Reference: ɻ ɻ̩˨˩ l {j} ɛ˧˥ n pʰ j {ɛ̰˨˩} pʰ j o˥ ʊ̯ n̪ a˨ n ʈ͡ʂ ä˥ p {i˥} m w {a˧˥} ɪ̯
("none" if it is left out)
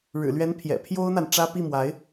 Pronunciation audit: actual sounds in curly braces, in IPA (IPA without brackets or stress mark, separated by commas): ɥ, ɛ̰˨˩, i˥˩, a˧˥